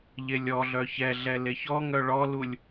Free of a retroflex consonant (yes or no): no